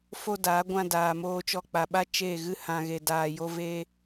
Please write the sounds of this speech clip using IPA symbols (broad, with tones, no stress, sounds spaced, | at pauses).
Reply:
f o˦ d aː˨˦ ɡʷ ã˧ d aː˨ m oː˧ t͡ʃ ɔ˧ k͡p a˨ ɓ a˦ t͡ʃ e˦˨ ɣ ɨ˦ h ã˧ ɣ e˧ d aː˧ j o˦ v e˦